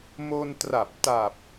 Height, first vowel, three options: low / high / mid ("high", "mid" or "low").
mid